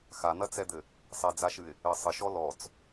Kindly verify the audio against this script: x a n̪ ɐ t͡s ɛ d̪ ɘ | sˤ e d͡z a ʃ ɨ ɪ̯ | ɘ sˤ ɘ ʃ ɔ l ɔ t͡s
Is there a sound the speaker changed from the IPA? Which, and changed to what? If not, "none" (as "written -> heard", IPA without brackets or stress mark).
none